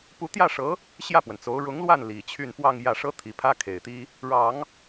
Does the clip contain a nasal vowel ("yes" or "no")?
no